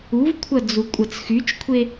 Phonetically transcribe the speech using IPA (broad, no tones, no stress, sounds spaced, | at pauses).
u v kʷʰ ɐ d͡z u kʷʼ ɐ t͡s x y t͡ʃ kʷʰ e